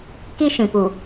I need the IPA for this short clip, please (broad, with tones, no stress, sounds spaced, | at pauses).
k i˦ ʃ ĩ˨ p u˨